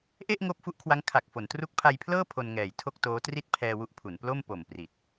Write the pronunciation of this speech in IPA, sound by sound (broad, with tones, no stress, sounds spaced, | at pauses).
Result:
ʔ e˥˩ ʔ ŋ oː˦˥ p̚ f u˦˥ ʔ kʰ w a˦˥ ŋ kʰ a˨˩ k̚ f o˩˦ n t r u˦˥ k̚ pʰ a˧ j pʰ l ɤː˥˩ pʰ o˧ n ŋ ɛː˨˩ j tʰ o˥˩ k̚ t oː˦˥ t r i˥˩ t̚ pʰ ɛː˧ w u˦˥ ʔ pʰ u˩˦ n p l o˥˩ m p o˨˩ m p r i˨˩ t̚